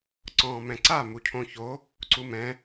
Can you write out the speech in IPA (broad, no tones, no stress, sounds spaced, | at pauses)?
ǀ ɔ̃ː m ɛ̃ ǀ a m u cʰ õ ç o | ǀ u m ɛ̃